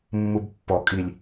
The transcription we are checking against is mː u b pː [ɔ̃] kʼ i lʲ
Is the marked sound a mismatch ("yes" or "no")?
yes